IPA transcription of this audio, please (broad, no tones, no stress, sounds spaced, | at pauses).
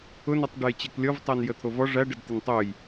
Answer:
ʊ n ɔ tˤ ɖ e j t͡ɕ ɘ k lʲ ɔ v tˤ æ n j ə t̪ʰ o v ɔ ʐ æ ɖ ə d t̪ ə n tˤ o j